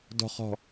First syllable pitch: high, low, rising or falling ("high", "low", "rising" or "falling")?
falling